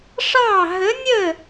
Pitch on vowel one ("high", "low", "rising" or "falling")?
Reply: falling